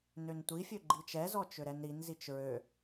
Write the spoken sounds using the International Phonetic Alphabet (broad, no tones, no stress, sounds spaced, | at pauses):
n ø n tʷ i fʲ ø ɡ͡ǃ i t͡ʃ ɛ z ɔ t͡ʃ ø ɾ ɛ n ɾ i n z i t͡ʃ ɹ ø